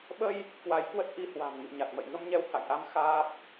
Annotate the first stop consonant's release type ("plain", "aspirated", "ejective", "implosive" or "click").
implosive